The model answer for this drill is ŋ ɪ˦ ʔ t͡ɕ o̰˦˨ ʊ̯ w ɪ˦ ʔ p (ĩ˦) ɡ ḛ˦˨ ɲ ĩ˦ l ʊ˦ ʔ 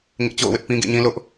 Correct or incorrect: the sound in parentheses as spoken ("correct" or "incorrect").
correct